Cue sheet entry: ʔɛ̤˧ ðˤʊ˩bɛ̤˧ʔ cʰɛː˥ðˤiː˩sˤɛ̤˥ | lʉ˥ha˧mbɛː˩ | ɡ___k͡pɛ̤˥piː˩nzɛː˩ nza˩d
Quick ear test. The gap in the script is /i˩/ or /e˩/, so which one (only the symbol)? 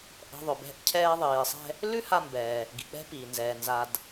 i˩